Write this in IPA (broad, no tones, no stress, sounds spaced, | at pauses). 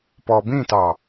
p ɔ b ĩ t ɑ